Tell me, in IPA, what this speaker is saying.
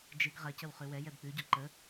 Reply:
d͡ʒ ɨ ɡ ʁ ɐ c ə w χ ʉ w ɛ j ɛ b k͡p ʉ ɟ ɔ ǃ ə

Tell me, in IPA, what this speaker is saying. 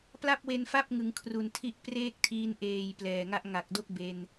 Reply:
p l a˥˩ p̚ w e˧ n f a˥˩ p̚ ŋ ɯ˩˦ ŋ kʰ r u˨˩ n tʰ i˦˥ ʔ p r eː˥˩ k̚ tʰ iː˧ n ʔ eː˨˩ j p l ɛː˨˩ ŋ a˦˥ ʔ ŋ a˨˩ k̚ d o˥˩ k̚ b e˧ n

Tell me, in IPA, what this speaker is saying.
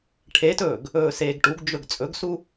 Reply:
ʈʰ e t ɵː ɡ | ɵː s eː ɡ ʈ u ɡ d͡ʒ ɵ ɡ t͡sʼ ɵ ɡ s u

